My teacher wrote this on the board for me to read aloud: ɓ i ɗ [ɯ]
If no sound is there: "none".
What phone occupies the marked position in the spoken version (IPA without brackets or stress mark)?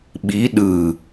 ɯ